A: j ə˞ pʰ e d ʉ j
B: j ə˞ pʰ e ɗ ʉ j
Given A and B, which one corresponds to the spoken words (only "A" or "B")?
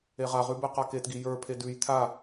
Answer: A